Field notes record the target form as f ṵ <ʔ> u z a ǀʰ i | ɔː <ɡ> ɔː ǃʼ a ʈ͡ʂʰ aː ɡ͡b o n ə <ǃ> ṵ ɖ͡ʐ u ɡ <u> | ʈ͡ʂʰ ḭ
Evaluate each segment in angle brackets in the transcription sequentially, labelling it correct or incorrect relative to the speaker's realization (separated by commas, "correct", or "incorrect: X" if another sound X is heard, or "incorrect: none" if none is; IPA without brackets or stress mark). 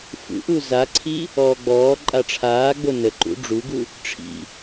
correct, incorrect: ɡ͡b, correct, correct